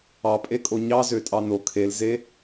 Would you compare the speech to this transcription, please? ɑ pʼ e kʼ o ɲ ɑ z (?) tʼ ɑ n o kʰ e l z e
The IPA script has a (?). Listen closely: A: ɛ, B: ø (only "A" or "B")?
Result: B